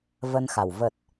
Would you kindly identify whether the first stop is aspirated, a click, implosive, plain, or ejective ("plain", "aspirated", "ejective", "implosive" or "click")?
plain